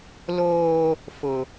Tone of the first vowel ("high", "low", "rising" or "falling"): high